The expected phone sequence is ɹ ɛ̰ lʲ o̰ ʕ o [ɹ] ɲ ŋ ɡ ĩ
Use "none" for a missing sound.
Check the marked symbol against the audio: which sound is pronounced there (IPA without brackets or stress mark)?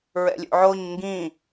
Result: none